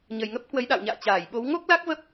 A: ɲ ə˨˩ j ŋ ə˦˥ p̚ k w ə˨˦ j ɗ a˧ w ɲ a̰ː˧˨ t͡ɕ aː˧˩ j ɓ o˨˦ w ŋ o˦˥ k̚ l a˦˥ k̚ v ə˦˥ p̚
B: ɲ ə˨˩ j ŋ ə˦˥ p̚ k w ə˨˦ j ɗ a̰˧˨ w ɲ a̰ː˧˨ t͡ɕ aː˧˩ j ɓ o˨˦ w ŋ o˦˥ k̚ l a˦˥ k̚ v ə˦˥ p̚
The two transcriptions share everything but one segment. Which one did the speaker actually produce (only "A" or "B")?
B